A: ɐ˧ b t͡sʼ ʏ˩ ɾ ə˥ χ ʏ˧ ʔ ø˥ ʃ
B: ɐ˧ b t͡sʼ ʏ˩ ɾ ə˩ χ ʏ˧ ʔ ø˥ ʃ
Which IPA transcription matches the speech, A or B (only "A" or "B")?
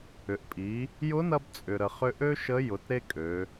B